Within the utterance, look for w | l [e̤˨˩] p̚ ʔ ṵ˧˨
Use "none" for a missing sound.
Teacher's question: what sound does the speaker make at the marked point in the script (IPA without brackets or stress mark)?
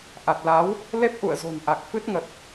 e˦˥